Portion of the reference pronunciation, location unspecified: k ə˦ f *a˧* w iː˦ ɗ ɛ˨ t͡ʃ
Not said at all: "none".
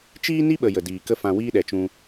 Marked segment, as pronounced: ã˧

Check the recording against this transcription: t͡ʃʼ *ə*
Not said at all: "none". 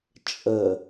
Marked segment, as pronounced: ə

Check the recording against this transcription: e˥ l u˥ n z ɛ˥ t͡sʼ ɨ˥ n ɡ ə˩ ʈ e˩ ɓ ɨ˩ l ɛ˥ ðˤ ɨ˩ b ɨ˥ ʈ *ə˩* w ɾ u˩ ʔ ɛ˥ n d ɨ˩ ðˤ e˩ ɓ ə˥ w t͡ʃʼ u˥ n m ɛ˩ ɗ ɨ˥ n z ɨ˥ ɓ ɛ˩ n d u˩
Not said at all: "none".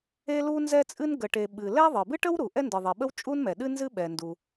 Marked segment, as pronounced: ə˥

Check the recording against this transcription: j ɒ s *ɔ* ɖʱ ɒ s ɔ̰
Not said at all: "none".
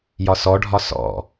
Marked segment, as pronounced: ɔ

